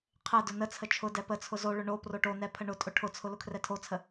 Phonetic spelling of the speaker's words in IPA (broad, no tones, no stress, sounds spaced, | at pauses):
qʰ ɛ d ʊ n ə t͡sʰ ə t͡ʃʰ ʊ d ɛ p ə t͡sʰ ʊ z o ɭ ʊ ɳ o p r o ʈ o n ɛ pʰ ə ɳ ʊ tʼ ʊ ʈʰ ʊ t͡sʰ ʊ l ʊ kʰ r ɛ tʰ o t͡sʰ ə